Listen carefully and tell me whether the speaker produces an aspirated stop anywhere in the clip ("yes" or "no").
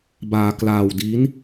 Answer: no